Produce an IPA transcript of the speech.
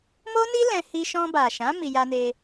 m o˦ n i˦ l ɛ̃˧ h i˧ ʃ ɔ̃˧ b a˨ ʃ ã˨˦ m i˧ j a˧ n e˧

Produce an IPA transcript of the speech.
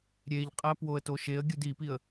ɾʲ e ʎ qʼ æ p w o ə̯ t o ʃ e ə̯ ɡʲ u d i p i ə̯

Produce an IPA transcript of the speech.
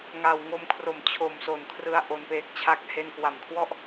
ŋ a˨˩ w ŋ o˧ m kʰ r o˨˩ m t͡ɕʰ o˨˩ m s o˩˦ n kʰ r ɯ˧ a̯ ʔ o˧ n p eː˦˥ k̚ t͡ɕʰ a˥˩ k̚ h e˧ n k w a˨˩ m kʰ w ɔ˥˩ ʔ

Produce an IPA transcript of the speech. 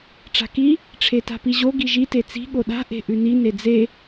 ʈ͡ʂ a̤ k i | ʈ͡ʂʰ e t a̤ p i ʑ o ɡ i ʒ i t e t͡s i̤ ɠ o ɗ a̤ ʔ e̤ ʔ ʉ n i n e d͡z e

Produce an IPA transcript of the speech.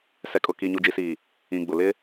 s ɛ˨ kʼ ʊ˨ k i˨ ɲ u˨ d͡ʒ i˨ s iː˨ | ĩ˨ ɡ͡b ʊ˨ l ɪ˦

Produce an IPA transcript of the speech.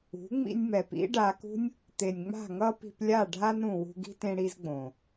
ṳ˨˦ ŋ͡m ḭ˧ nʲ m ɛ˨ p ḭ˦ ɖ a˧ k ṳ˦ nʲ | t̪ e˨ nʲ ŋ͡m a̤˦˨ ŋ ʌ˦ p i̤˧ p lʲ a˦˨ ɖʱ a˦ n ɾ ũ˨ w ṳ˧ ɡ i̤˦ t ẽ˦ ɽ i˦ z ɡ͡b õ˨

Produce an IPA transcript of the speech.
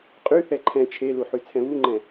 qʼ y θ ɛ ǃʰ ɛ̃ t͡ʃʰ e l u ħ y t͡sʰ ɛ̃ β u ŋ͡ǃ ɛ̃

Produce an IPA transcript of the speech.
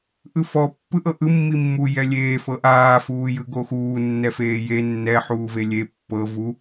ʔ ɯ f ɔ pː ɯ ʔ ɤ ʔ ɯ mː i mː u j ɛ lʲ eː f ɤ ʔ aː f uː j ɯ ɡ o x uː nː ɛ f eː j e nː ɛ ħ uː v e lʲ e pː ɤ v u

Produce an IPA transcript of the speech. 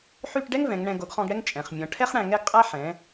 ħ y˥˧ ʈ ɖ ɛ˥ ŋ v ɛ̃˩˧ ŋ ɳ ɛ̃˧ ɡ o˧ ɡ χ ɔ̃˥˧ ɡ ɽ ɛ˥ ŋ t͡ʃʼ ɛ̃˩˧ χ mʲ ɔ̃˩˧ ʈʰ ɛ˥ χ ɽ æ̃˧ ŋ ɛ˥ ɡ qʼ æ˥ ħ ɛ̃˩˧

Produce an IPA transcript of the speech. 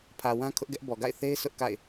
pʰ ä˨ w ã˦ kʰ ʊ˦ ʔ ɡ ɛ˦ ʔ b ɔ˨ ɡ a̰˦˨ ɪ̯ θ e˦ ɪ̯ s ʊ˦ ʔ k a̰˦˨ ɪ̯

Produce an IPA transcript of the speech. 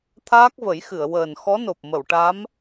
t̪ʰ aː˦˥ k̚ v ə˨˩˦ j x ɨ˨˩˨ ə̯ w əː˨˩ n x ɔ˧˥ n o˨˩ p̚ m ə˨˩˨ w ʈ a˧˥ m

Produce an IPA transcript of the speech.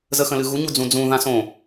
z ə x ə̃ l ɨ ɣ u ɲ u d͡z ũ d͡z ũ ð ã s õ

